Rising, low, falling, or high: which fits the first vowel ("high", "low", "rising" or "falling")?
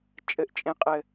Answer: low